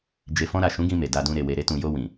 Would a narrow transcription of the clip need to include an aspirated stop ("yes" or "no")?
no